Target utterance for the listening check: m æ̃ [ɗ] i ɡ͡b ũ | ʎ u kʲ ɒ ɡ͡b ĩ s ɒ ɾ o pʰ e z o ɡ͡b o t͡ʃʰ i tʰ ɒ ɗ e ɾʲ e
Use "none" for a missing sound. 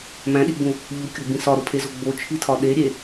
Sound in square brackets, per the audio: ɗ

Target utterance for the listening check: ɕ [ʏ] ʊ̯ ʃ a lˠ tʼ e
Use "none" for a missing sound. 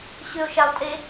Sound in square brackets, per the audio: ʏ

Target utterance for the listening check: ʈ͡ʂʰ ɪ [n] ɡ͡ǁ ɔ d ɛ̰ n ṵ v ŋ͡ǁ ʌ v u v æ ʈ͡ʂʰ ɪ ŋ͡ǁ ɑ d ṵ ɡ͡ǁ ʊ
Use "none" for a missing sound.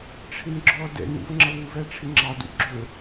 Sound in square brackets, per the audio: n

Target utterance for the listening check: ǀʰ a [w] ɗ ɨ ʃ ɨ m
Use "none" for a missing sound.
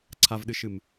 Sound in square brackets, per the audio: v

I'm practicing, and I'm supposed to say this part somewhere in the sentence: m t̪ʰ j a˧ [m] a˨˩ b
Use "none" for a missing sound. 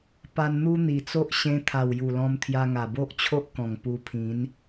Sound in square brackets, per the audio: ŋ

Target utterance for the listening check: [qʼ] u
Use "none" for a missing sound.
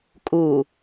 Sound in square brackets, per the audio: kʼ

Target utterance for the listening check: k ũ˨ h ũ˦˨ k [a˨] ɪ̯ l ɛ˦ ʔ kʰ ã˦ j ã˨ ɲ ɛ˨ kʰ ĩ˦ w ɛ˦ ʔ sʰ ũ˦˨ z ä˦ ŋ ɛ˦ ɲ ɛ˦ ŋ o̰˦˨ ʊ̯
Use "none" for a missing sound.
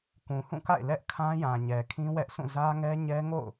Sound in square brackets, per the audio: a̰˦˨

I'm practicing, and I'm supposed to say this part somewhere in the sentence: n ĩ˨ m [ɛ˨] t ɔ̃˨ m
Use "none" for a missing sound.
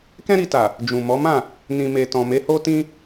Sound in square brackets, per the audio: e˨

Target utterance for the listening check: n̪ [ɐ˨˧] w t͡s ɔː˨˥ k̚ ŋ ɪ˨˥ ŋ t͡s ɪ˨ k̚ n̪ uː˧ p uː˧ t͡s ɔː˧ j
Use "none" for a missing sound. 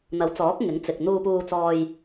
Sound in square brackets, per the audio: ɐ˨˥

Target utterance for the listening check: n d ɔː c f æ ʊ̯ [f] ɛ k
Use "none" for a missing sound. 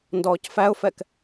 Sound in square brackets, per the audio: f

